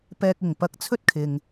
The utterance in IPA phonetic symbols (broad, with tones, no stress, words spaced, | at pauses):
pɛː˥k̚ɪ˨ŋ pɐ˥k̚ t͡sʰɵ˥t̚kʰɪ˨ŋ